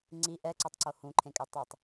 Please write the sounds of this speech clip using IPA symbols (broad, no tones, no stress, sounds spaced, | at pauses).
ŋ͡ǀ i ʔ ɛ ǀ o tˤ ǀ o h ũ ǃʰ ẽ kʼ ɛ tˤ i tˤ